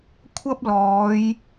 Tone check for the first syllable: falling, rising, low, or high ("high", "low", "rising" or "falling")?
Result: high